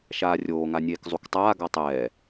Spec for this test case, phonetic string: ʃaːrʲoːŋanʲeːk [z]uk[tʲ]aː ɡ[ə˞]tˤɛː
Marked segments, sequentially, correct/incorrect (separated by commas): incorrect, incorrect, incorrect